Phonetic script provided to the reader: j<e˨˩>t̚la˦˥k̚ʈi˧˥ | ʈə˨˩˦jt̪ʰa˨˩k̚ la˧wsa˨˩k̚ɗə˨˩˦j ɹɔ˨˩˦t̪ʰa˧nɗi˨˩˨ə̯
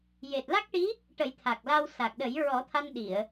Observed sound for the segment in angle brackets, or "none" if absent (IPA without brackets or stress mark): e˨˩